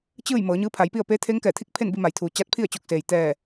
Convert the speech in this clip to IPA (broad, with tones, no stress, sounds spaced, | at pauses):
t͡ɕ ɯː˥˨ j m ɤː˩˧ ɲ ɯː˧˥ pʰ a˩˧ j p i˥˨ ə̯ p eː˧˥ t̪ʰ e˧˥ ŋ k ɛː˧˩ t̪ʰ i˥˨ k̚ pʰ e˥˨ n b i˧ m a˩ j t̪ʰ uː˩ t͡ɕ a˧˥ t̚ pʰ i˥˨ ə̯ t͡ɕ o˧ k̚ s eː˩ j t̪ ɛː˧˩